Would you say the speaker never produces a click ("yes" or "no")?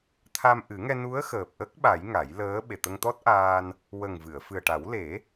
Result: yes